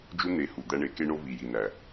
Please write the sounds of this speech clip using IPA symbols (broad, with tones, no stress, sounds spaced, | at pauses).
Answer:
d͡ʒ u˦ n̪ e˨˦ h u˨ d̪ æ˧ ɳ e˨˦ k e˦ ɳ o˦ v i˨ j i˨ n æ˨